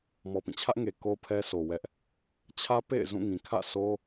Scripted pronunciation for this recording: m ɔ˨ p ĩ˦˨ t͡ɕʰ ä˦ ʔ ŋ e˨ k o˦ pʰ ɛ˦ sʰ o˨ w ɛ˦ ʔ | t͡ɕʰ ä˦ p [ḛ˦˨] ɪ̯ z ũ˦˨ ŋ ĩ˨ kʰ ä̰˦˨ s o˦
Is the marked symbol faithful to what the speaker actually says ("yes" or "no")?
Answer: yes